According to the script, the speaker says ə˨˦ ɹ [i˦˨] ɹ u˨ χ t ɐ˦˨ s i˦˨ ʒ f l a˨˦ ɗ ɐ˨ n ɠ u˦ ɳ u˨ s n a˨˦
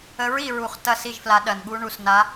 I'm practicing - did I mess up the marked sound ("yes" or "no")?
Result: yes